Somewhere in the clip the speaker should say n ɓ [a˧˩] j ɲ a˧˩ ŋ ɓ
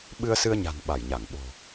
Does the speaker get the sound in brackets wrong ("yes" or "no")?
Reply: no